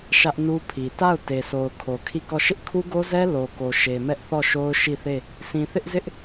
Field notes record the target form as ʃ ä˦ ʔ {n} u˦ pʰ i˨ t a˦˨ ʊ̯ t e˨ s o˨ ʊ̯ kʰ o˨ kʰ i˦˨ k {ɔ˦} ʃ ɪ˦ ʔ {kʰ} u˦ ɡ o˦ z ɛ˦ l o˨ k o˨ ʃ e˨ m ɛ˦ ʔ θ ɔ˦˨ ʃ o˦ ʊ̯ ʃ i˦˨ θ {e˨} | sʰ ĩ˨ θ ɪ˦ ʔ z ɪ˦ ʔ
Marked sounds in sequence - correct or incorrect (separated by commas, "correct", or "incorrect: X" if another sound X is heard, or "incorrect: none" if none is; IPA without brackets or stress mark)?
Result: correct, incorrect: ɔ˦˨, correct, incorrect: e˦˨